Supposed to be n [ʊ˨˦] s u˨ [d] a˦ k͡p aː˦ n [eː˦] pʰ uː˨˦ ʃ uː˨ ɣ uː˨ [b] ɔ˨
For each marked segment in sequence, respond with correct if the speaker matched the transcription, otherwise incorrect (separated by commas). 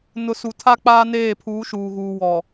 correct, incorrect, incorrect, incorrect